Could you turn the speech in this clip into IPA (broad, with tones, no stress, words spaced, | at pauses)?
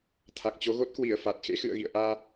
t̪ʰa˨˩k̚t͡ɕo˨˦ ɣo˦˥t̚kwi˧˩ə̯ fa˨˩t̚ xḛ˧˥xɨ̰˧˨ə̯ɣḭ˧˨ə̯ʔaː˧